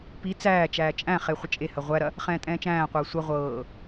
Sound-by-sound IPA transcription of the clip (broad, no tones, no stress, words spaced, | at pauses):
pi t͡sæːt͡ʃæː t͡ʃʼæ̃χe χʷət͡ʃʼehɐ ʁʷæɾɐ | χɛ̃ːtʼɛ̃ːt͡ʃæ̃ːqʷɤː sʷɐ ʁʷɤː